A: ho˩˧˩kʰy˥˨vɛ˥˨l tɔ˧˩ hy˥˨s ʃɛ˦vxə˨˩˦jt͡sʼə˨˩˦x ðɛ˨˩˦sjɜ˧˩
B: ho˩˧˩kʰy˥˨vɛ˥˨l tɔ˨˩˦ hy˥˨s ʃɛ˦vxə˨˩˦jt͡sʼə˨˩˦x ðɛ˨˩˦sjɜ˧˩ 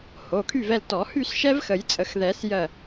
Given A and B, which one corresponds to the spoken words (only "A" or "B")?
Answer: B